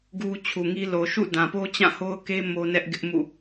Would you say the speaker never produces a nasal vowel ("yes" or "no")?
no